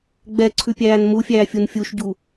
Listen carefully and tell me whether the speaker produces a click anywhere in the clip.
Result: yes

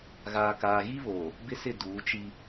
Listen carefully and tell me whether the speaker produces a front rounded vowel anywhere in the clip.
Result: no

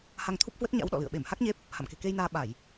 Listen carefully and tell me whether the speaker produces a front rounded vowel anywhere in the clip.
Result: no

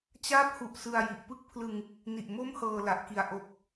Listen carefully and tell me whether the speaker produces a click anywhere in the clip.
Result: no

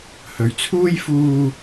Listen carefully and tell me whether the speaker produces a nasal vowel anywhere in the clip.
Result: no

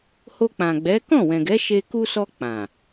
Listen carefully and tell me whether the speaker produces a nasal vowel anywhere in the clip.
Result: yes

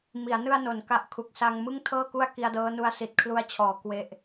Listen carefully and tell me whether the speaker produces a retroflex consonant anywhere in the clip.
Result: no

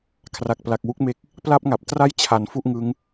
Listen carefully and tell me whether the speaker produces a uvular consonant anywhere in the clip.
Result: no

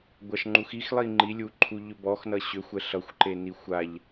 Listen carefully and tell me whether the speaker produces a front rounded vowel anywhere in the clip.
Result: yes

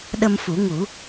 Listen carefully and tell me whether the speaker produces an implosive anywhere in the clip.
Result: yes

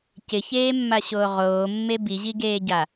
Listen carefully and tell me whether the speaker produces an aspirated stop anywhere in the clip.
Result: no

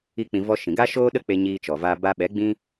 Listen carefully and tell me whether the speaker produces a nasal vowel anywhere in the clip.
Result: yes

